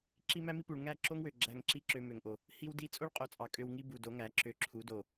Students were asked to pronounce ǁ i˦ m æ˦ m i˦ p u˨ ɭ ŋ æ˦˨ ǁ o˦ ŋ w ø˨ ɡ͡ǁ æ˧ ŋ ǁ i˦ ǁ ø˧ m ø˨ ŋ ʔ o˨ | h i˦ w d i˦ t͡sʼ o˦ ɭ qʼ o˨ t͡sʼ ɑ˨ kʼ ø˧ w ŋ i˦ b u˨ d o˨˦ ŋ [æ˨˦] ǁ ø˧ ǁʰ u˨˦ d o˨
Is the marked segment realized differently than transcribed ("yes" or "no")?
no